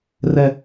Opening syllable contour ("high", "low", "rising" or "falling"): high